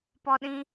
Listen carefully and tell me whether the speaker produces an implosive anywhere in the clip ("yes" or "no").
yes